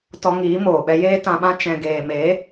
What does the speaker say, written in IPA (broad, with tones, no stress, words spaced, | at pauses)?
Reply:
tɔ˧ŋiː˨˦moː˨ ɓɛ˧jeː˦tã˧ɓã˦ t͡ʃɛ̃˨ɡeː˨me˨˦